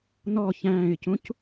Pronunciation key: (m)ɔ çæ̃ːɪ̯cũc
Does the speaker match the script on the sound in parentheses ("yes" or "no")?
no